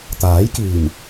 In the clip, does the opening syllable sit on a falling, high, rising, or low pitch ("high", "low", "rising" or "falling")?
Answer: rising